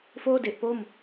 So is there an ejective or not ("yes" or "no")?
no